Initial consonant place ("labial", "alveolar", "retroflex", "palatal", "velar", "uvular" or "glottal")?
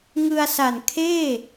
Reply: velar